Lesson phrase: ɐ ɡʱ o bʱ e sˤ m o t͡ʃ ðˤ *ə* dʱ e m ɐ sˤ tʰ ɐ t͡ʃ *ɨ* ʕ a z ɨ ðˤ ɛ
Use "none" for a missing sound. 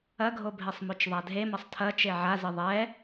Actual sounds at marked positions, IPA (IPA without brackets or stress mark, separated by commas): a, e